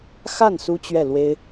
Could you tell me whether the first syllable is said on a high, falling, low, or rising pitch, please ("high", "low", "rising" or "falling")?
falling